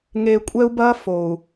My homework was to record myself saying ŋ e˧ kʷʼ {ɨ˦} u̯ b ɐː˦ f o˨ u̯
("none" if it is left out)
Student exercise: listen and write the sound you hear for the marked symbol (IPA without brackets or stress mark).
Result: ɛ˦